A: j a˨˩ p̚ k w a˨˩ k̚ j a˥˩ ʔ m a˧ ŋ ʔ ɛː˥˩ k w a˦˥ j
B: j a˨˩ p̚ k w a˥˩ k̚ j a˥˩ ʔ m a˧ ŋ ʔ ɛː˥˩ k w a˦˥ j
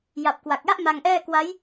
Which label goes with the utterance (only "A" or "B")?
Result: A